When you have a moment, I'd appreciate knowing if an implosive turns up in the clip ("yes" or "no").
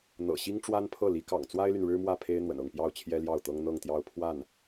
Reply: no